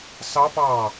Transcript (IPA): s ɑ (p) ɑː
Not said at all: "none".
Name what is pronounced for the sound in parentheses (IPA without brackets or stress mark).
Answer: p